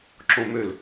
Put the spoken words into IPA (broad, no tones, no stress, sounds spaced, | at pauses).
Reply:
ǁ õ m ø l